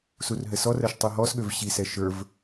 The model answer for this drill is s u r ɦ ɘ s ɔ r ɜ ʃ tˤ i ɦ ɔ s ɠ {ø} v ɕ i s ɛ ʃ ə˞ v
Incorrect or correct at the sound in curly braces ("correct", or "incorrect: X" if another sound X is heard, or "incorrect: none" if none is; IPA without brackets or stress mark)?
correct